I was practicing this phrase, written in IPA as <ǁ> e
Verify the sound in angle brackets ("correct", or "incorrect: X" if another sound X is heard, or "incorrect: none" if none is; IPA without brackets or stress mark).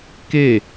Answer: incorrect: k